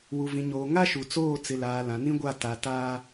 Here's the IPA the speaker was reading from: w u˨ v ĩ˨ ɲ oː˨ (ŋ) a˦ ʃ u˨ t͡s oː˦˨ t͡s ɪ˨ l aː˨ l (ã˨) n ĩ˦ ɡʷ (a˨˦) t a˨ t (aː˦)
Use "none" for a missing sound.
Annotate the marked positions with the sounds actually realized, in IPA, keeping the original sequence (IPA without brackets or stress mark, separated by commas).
ŋ, ã˨, a˦˨, aː˦